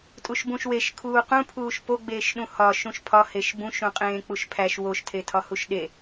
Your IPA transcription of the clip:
tʼ u ʃ b ũ ʃ w e ʃ kʰ uː q ũ pʰ uː ʃ p o ɡ͡b eː ʃ ɗ ũ h ɒ ʃ ũ ʃ pʰ ɒ h e ʃ b ũ ʃ ũ qʼ ẽː k͡p u ʃ pʰ æ ʃ w o ʃ tʰ e tʰ ɒ h u ʃ ɗ e

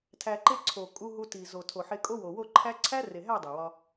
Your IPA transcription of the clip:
tʰ æ˧ ǃ e˦ ǀʰ o˨ kʼ u˧ ɦ u˧ t i˨ z o˨ tʰ o˨ ħ e˧ kʼ o˦ w o˨ w o˦˨ ǃʰ æ˦ ǀʰ æ˦ r e˨ ɦ æ˦˨ dˤ e˨ w ɒ˧

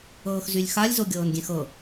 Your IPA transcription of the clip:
ɤː x z y lʲ x a lʲ z o ɡʲ ɤː n ɡʲ ẽ x ɤ

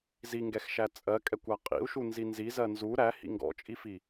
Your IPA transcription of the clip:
z i ŋ ɡ ɛ x ʃ æ t͡sʼ ɜ kʼ ɛ kʷ a qʼ ḭ u̯ ʃ u n z i n z i z ɜ n z u ɾ æ h ḭ ŋ ɡ ɔ̰ t͡ʃʼ i f i

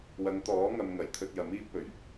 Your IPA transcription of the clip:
w ɐ˨˧ ŋ t̪ ɔː˨˥ ŋ ɐ˨ m ŋ ɐ˨˩ j t̪ʰ ɵ˧ t̚ j ɐ˨˥ m iː˥ p̚ ɵ˨˩ ɥ

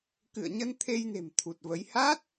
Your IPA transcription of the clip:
k ɨ̰˧˨ ə̯ ɲ ə˧ n t̪ʰ e˧ j n e̤˨˩ m t̪ʰ u˨˩ t̚ v ə˨˦ j h a˦˥ t̚

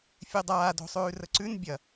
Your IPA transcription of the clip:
fʲ ʉ dˤ aː d o̤ sˤ ʉː r ə ǀ ʉ n bʲ ɐ

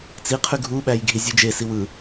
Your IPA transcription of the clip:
t͡s i qʰ y ɡʱ u ɓ æ j ɡʱ i zʲ u d͡ʒ e s i w ɯ

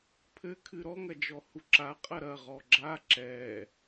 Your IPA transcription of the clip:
pʰ ɘ kʰ ɨ ɾ ɔ ŋ ɐ d͡ʒ ɔ h u ǁ a qʼ ɐ ɾ ɐ ʁ ɔ ɡ͡ǁ a ǁ ɛ

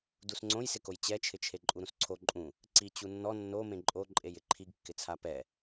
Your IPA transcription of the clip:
d u s ŋ͡ǀ õ j s ɪ k o j t͡ɕ ɛ t͡ʃʰ ɪ t͡ʃʰ e ǃʼ u ɾ ũ s ǀʰ o ǃʼ ũ | ǀ i t͡ɕ u nː ɔ nː o m ẽ ǃʼ o ǃʼ e j ɪ ǃʰ i ɡ kː ɪ t͡sʰ a p ɛ

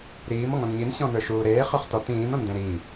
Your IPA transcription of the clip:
ɾ iː m ɔ ŋ ɔ̃ n ɲ i n ɕ ɔ̃ n ə˞ ʃ uː ɾ eː χ œ χ t ɔ t ĩː n ɔ̃ n d ẽ ɾ iː

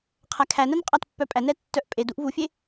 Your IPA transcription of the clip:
qʰ æ kʰ æ n ɜ n qʼ ɑ t pː œ pʼ æ n ɛ tː œ ʔ pʼ e d u ʔ v u fʲ e

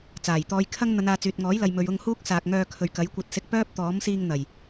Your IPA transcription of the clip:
t͡s aː˨˩ j t̪ ɔː˧ j kʰ ɐ˥ ŋ n̪ ɐ˨˧ n aː˨ t͡s yː˨ t̚ ŋ ɔː˨˥ j l ɐ˨ j m ɵ˨ ɥ ʊ˧ ŋ h uː˥ k̚ s aː˨ k̚ ŋ œː˧ kʰ ɵ˨ ɥ k ɐ˨˥ j kʷ ɐ˧ t̚ s ɪ˧ k̚ p œː˥ p̚ t̪ ɔː˨˥ m s iː˧ ŋ n̪ ɐ˨˩ j

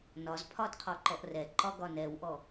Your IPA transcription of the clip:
n ɒ z pʰ ɒ d qʰ ɔ ǃ ɔ ʔ r ɛ ǃ ɒ ɡ ɒ n ɛ w ʔ ɔ

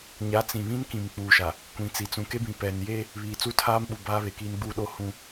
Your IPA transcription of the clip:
ɲ a˨˦ t͡s ĩ˨ β ĩ˦ n k ĩ˨ m k͡p uː˨ ʃ a˨ | kʷ ĩ˨ t͡s i˨ t͡s ũ˨ k e˦ b ĩ˨ p ɛ˨ n j eː˦ | β iː˨ t͡s u˦ tʰ aː˦ m ɓ u˨ b aː˦ β e˨ k iː˦ n ɡ͡b u˦ ɗ o˦ h ũ˦

